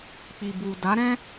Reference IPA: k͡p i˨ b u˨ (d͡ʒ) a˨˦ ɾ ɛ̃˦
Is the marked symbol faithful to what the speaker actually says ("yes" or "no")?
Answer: no